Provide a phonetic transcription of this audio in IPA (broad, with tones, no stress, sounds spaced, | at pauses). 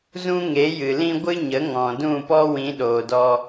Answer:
z ũ˦ ŋ e˨˦ j ɨ˨ l ĩ˦ ɡʷ ɨ˦ ɲ ə˨˦ ŋ ɔ̃˨ d ũ˦˨ p ɔ˦ w ĩ˨˦ ɗ oː˨ d ɔ˧